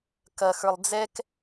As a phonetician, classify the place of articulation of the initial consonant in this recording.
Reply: velar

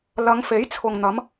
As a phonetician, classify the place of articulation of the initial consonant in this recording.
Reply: alveolar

